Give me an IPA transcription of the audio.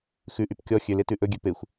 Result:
xʉʔyp kʲɔ xʲøle tʉʔɵɡʲø pexʷ

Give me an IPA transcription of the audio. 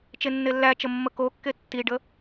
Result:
t͡ʃenːelːæt͡ʃə mːəkokːe tːiɖə

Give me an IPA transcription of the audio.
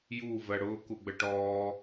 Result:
ju vɜɽʊː kuɡ͡bəʈɔː

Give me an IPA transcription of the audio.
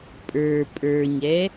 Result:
pʼə˞ pʼə˞ɲɛ

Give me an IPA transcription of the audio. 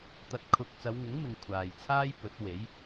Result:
t̪ɐ˧t̚kʰʊ˧k̚ t͡sɐ˨˧wŋɪ˨˥ŋmɪ˨ŋ kʷʰaː˨jt͡sʰaː˥j pɵ˨˥t̚we˨˥j

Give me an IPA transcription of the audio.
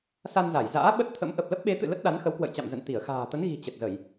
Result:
sa˧nza˧˩jza̰ː˧˥ ɓə˦˥t̚t̪ʰə̰˧˥m ʔə˨˩p̚lə˦˥p̚ɓe˨˦t̪ɨ̰˧˨ lə˦˥t̚ɗa˨˦nxə˨˦w kwə̰˧˨jt͡ɕa̰˧˨mzə̰˧˨n t̪i˧˩ə̯xa̤ː˨˩t̪ə˨˦n ɣi̤˨˩ t͡ɕə˨˩t̚zə˧˩˨j

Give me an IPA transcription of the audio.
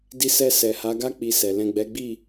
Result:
di˧sɛ˧ sɛ˨ha˨˦ɡa˦ k͡pi˧sɛ˨ lɛ̃˨ɡ͡bɛ˨˦ɡ͡bi˦˨

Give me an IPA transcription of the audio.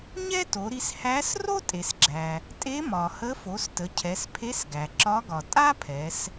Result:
ɲɛ˥to˩˧ɾi˧s hæ˧˥s ro˥tʼe˩sɡ͡ǁæ˩ | tʼe˧˥mɒ˩hə˧˥ fo˩˧stə˩˧cʰɛ˩˧s pʰe˧˥sɡæ˩ ǁɒ˧˥ɡɒ˩ tʼa˥ pʰɛ˩˧s

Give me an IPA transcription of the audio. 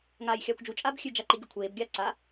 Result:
ŋaːjxʲaːkʷd͡ʒu t͡ʃʼaːbxʲʉ d͡ʒaǃiɡʲukʷʰeːb ɡʲa ǀa

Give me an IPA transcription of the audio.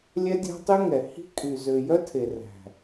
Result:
lʲɛ˦dʲæ̤˦tˤy˦ŋɛ˨ hi̤˦kʼy˨ zø˨jœ˦ tʰe˨ræ̤˨

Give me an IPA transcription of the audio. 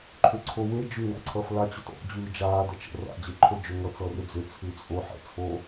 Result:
ǃʰʏǀʰowe d͡ʒʉ ŋa̰ǀʰʌfla t͡ɕʏtɔ̰ d͡ʑʉːd͡ʒaː dət͡ʃə̰ ra̰ d͡ʑeǃʰod͡ʒʏ ŋʌ t͡sʌrʏd͡zʏ t͡sʰʉt͡sʼo ħɛ̰t͡sʰo

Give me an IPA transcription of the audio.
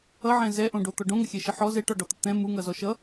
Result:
ʌʕɛ̃ zɛʔõɖot̪ɔ ɖõŋəxʲɛʃə ħɔ zɛʈɔɖɔt̪ə t̪ɛ̃ muŋʌzɔ ʃʌ

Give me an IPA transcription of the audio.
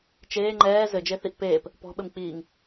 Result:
t͡ʃeː ŋ͡ǃɛː zɘd͡ʒeθiʔ peːp | pɔ̤ɓɘm k͡piːŋ

